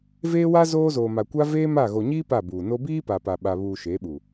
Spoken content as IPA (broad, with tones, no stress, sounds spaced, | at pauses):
v eː˦ w a˦ z oː˦ z oː˨ m a˨ kʷ a˦ v eː˦ m a˦˨ ɣ o˨ ɲ iː˦ p a˦˨ b uː˨ n o˦ b iː˦ p a˨ p a˨ ɓ a˨ β uː˨ ʃ eː˨˦ ɓ u˨